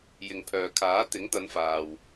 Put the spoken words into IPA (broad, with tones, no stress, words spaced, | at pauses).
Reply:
jɪ˨ŋpʰœː˨kʰaː˨˥ t̪ɪ˨˥ŋt̪ɐ˨˧nfaː˨w